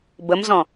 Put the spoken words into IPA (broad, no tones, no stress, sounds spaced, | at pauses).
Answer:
b ə m z ɔ̃